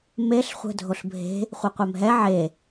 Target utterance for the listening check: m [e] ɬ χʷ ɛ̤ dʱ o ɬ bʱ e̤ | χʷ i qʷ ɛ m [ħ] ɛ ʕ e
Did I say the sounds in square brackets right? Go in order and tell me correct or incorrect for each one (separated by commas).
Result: correct, incorrect